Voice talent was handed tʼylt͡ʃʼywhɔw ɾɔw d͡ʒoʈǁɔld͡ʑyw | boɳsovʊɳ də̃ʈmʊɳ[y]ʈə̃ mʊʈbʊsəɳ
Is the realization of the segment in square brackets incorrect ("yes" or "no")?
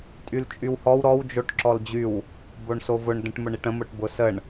yes